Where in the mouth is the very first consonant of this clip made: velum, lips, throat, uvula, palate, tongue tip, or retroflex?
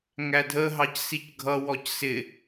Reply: velum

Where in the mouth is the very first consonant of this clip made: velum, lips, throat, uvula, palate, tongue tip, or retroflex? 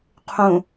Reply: uvula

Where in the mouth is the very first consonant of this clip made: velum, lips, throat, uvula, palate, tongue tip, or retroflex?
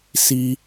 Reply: tongue tip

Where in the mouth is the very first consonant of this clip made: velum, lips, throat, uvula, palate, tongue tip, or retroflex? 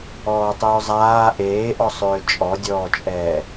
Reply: tongue tip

